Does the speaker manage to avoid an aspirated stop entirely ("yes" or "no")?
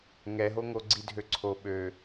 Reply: no